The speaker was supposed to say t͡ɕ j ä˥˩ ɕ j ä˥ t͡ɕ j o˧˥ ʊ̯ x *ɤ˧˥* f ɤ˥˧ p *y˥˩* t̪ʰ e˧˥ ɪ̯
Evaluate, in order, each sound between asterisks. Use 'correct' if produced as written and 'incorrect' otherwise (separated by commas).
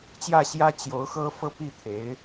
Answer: incorrect, incorrect